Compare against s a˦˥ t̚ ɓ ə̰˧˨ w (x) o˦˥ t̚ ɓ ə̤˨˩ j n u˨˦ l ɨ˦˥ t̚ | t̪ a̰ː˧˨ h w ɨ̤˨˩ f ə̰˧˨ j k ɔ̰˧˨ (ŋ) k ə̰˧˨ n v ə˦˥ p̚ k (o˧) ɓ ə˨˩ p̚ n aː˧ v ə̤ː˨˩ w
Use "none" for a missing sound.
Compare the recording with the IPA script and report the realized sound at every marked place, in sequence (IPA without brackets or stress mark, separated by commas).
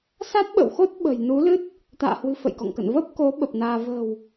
x, ŋ, o˨˦